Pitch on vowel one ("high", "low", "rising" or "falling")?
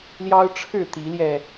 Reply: high